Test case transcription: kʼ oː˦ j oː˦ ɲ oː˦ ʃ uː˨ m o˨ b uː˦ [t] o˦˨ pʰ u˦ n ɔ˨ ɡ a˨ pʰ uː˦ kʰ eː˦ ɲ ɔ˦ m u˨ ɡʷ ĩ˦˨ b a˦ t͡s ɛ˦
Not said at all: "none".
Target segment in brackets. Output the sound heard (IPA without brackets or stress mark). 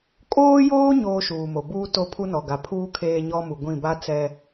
t